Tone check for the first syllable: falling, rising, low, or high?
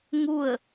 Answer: falling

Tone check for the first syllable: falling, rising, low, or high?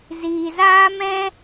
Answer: low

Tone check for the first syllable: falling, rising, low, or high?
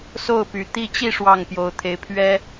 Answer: falling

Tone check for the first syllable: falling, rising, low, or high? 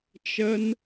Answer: high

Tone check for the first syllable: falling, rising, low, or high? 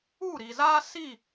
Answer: falling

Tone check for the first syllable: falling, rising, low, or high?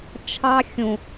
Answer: high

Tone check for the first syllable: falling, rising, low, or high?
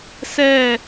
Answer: falling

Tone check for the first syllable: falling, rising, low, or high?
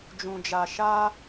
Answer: low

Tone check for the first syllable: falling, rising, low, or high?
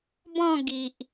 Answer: falling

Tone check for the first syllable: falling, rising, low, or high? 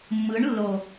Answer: rising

